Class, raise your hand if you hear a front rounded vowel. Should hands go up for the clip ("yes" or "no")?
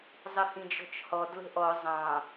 no